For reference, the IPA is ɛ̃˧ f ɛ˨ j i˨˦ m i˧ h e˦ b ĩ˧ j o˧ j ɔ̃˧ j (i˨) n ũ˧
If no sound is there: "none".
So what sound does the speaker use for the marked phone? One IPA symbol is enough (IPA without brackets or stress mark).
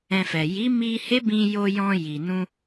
i˨